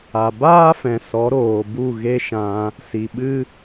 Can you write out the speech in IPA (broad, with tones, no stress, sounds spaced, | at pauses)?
a˨ b aː˦ f ɛ̃˨ s ɔ˨˦ ɾ oː˨ b u˦˨ ɣ e˦ ʃ ã˧ | s i˨ ɓ ɨ˦